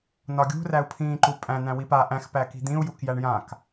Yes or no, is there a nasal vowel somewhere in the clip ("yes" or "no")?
yes